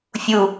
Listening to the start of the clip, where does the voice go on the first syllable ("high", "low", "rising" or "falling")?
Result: low